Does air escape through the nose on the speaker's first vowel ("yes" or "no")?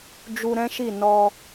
no